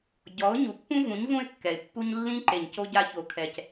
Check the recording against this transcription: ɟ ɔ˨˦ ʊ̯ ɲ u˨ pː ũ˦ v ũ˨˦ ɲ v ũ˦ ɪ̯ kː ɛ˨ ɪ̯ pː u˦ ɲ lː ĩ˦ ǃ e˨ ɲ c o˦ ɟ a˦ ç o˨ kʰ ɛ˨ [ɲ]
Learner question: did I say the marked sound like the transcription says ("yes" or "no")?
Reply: no